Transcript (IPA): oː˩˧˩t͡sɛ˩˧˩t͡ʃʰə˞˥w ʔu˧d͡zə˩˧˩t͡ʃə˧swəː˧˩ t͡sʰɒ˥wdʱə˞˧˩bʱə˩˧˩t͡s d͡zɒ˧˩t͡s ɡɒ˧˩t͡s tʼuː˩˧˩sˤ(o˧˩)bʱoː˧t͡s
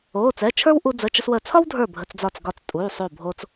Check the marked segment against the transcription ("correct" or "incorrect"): correct